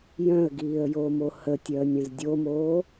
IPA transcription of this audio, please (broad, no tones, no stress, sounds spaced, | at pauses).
j œ̃ ə̯ ɡ iː ə̯ j o m o h ə tʲ œ ə̯ nʲ œ̃ z dʲ o m oː